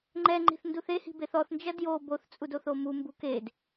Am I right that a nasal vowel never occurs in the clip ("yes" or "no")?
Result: yes